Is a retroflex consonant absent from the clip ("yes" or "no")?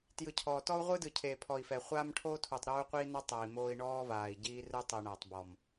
no